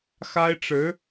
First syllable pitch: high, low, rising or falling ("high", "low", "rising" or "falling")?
high